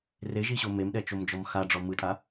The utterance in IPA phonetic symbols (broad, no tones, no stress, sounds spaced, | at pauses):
r e ʒ i ɕ o m e m ɗ ɛ t͡ʃ o m d͡ʒ ɔ m x a ɖ͡ʐ ɔ m ɯ tʼ a